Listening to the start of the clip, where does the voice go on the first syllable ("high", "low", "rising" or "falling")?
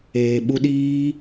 low